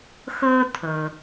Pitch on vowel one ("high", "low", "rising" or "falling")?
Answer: high